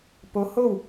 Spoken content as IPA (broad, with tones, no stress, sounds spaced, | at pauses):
p o˧˥ h o˥˨ w